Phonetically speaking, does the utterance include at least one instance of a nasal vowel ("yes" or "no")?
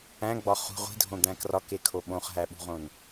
yes